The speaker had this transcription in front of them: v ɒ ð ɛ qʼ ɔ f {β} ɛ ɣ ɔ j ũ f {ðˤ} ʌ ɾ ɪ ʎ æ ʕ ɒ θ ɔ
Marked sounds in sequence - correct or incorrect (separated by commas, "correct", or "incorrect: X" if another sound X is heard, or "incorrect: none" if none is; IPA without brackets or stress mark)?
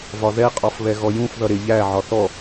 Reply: correct, incorrect: ð